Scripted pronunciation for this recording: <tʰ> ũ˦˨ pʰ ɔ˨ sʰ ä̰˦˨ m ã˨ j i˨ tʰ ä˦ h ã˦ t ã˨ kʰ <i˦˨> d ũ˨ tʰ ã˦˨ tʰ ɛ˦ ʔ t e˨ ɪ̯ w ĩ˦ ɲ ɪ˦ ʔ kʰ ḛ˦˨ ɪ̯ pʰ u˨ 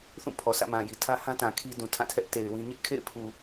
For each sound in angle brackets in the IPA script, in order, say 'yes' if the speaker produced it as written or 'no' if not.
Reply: no, no

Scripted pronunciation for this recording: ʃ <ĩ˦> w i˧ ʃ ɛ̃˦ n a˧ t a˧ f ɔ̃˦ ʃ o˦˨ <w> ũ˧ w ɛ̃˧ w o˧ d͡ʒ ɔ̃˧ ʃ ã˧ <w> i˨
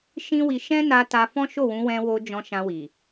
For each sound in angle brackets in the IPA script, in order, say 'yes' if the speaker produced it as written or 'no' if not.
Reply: yes, yes, yes

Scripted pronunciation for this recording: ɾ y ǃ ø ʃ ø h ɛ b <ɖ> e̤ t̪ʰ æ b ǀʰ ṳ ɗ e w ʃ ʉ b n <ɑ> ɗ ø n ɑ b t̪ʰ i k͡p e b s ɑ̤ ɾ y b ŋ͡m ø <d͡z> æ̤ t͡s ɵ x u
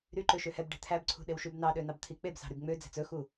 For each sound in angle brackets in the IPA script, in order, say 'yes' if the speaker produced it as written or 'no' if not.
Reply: yes, yes, yes

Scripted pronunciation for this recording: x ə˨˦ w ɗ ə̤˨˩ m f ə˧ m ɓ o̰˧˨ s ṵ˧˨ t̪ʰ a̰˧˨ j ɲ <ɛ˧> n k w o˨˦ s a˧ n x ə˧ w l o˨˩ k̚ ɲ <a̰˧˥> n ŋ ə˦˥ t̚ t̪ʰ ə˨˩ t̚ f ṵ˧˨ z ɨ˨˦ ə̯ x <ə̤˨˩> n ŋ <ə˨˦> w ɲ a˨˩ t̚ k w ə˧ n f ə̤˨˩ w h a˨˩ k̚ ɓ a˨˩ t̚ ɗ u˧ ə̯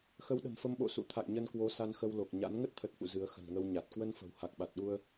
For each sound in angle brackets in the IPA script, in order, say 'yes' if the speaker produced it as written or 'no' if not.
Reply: no, yes, yes, no

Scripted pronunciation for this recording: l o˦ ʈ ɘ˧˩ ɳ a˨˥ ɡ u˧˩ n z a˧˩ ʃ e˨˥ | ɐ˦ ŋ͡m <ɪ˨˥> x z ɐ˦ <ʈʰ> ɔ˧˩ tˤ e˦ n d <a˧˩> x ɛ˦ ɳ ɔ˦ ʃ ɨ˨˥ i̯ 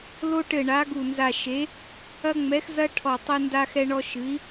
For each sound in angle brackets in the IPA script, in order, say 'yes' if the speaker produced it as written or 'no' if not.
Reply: no, yes, no

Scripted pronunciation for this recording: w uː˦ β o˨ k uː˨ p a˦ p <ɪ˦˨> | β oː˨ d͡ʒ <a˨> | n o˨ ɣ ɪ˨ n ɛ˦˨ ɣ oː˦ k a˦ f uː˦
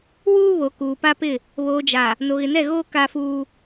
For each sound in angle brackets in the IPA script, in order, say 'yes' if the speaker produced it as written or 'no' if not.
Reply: yes, yes

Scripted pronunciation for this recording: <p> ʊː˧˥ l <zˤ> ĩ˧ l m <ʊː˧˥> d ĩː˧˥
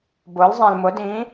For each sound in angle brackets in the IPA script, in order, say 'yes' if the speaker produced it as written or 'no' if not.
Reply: no, yes, no

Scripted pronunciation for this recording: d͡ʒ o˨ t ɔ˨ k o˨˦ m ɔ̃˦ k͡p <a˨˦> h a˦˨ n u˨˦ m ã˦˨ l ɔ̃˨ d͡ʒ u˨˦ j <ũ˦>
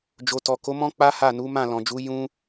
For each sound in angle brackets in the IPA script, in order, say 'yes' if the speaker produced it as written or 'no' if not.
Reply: no, yes

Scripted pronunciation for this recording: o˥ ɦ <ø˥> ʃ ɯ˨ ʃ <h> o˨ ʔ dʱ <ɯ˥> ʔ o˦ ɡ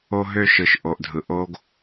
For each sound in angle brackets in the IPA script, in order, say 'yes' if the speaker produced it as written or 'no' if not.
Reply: yes, no, no

